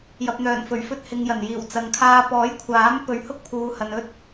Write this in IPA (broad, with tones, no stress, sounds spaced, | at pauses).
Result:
j ɐ˨ p̚ n̪ œː˨˩ n f ɵ˨˩ ɥ f ɵ˧ t̚ h ɪ˨ ŋ j ɐ˨˩ n j iː˨˩ w t͡s ɐ˨ ŋ kʰ aː˧ p ɔː˨˥ j kʷʰ aː˨˥ m p ɵ˨˧ ɥ h ʊ˥ k̚ pʰ uː˨˧ h ɐ˨ n ɵ˥ t̚